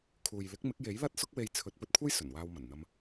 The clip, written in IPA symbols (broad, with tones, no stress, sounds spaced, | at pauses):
kʰ uː˨ j l ɪ˨˥ k̚ m ɪ˨˥ k̚ j e˨˥ j l ɐ˥ t̚ s ʊ˥ k̚ w e˧ j t͡sʰ ɵ˨˥ t̚ p ɵ˨ t̚ kʷʰ ɐ˥ j s ɵ˨˩ n w aː˧ w m ɐ˨˩ n n̪ ɐ˧ m